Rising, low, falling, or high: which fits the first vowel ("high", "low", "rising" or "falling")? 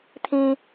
high